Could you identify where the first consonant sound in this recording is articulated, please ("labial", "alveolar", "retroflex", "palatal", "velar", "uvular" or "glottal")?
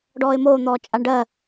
retroflex